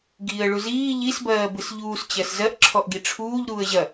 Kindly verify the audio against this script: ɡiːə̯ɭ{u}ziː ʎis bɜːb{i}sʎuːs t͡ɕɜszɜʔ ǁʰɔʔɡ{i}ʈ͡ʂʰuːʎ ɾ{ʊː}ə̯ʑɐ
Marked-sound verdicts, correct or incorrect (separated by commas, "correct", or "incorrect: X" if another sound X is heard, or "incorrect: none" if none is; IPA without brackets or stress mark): correct, incorrect: ɨ, correct, incorrect: uː